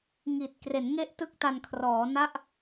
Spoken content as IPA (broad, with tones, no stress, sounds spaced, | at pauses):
ŋ i˨˩ t̚ k r e˩˦ n ŋ e˥˩ ʔ t ɯ˥˩ k̚ t a˧ n kʰ r ɔː˩˦ n a˥˩ ʔ